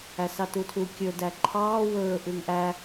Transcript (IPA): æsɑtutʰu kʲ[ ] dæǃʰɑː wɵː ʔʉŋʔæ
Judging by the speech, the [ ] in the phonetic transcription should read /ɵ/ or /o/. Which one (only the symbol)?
ɵ